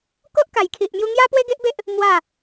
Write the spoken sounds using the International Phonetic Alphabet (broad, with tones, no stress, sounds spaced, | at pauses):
k o˦ ʔ k a˨˩ j kʰ i˨ ʔ m j u˧ ŋ j a˦ p w e˦ ɡ e˦ ʔ b e˦ ʔ | m w a˥˧